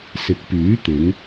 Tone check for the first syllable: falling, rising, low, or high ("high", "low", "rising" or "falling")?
rising